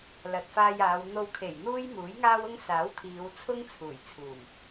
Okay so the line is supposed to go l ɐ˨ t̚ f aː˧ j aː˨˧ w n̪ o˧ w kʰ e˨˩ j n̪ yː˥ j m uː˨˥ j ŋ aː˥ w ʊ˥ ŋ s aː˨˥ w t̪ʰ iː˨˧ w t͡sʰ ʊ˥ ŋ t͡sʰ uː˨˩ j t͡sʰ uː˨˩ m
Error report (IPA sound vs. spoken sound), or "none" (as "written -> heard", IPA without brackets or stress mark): yː˥ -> uː˥